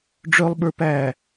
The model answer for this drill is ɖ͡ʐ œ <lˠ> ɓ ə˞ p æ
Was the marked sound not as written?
no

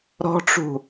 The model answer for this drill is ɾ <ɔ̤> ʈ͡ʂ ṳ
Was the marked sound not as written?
no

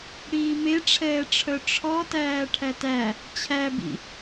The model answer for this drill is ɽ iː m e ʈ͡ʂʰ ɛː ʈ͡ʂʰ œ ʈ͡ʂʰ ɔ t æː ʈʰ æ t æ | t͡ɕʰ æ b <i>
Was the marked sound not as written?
yes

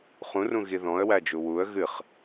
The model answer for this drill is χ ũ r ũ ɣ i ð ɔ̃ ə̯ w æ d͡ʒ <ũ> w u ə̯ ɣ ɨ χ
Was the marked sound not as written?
yes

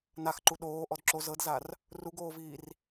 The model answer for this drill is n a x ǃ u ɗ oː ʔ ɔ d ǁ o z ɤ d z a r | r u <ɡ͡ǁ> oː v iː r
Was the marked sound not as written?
yes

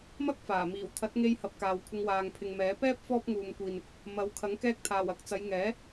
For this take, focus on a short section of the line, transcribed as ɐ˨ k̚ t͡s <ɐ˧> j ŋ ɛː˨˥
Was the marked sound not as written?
yes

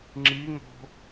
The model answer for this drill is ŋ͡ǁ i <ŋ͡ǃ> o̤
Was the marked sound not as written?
yes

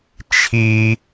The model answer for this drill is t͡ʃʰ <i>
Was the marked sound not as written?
no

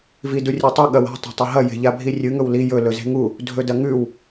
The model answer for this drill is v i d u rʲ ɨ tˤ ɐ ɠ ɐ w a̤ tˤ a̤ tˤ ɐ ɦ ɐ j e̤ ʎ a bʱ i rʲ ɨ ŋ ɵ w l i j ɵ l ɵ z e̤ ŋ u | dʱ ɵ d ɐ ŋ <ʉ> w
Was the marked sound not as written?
no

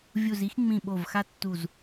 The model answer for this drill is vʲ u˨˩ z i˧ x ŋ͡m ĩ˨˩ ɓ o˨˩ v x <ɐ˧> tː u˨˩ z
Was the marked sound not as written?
yes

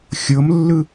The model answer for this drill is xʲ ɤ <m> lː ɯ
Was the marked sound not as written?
no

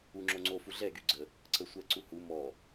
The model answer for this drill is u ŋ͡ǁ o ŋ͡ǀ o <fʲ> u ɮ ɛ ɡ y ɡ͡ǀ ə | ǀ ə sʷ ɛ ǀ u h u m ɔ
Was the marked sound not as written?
yes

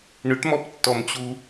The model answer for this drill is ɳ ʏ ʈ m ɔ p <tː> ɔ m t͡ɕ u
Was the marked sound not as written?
no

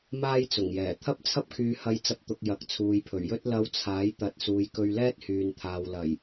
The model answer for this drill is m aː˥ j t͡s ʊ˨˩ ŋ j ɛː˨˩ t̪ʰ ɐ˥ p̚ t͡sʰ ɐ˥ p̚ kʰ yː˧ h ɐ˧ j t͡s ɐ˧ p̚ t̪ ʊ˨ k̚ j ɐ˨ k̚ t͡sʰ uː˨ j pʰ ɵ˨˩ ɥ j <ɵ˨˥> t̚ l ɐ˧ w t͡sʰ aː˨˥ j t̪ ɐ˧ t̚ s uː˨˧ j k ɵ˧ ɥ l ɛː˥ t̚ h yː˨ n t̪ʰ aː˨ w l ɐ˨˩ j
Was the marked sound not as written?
yes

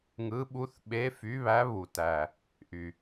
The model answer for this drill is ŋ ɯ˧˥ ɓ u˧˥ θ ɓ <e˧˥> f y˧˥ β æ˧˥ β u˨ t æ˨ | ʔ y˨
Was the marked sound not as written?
no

